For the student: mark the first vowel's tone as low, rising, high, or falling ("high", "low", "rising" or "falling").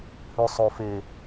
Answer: low